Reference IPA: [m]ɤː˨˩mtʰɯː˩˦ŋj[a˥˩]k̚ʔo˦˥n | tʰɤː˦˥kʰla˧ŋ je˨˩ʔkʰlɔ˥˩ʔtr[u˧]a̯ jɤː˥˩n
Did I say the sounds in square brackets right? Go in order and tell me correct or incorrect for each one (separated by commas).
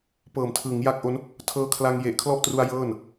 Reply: incorrect, correct, correct